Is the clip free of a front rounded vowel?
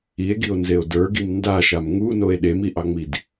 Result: yes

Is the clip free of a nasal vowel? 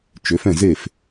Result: no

